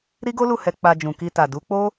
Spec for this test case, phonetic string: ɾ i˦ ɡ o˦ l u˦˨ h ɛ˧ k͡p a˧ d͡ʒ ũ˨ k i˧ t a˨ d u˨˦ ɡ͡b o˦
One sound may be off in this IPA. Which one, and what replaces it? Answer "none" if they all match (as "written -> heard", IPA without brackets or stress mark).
ɡ͡b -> k͡p